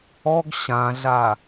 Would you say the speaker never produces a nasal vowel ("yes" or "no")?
no